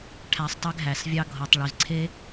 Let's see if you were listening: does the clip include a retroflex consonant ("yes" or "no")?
yes